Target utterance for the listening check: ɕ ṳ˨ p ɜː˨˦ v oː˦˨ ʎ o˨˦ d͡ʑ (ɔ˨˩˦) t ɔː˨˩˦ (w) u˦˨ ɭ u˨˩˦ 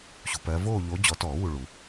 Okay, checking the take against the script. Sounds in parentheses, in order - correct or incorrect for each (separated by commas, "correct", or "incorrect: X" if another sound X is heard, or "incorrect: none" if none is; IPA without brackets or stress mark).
correct, correct